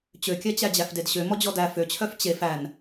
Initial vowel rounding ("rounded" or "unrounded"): rounded